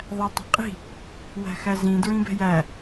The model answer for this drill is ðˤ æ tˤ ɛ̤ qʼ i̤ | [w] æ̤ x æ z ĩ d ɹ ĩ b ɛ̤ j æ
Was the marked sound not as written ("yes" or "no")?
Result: no